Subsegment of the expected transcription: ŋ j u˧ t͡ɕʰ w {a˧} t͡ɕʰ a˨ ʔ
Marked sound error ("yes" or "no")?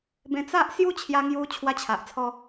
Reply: no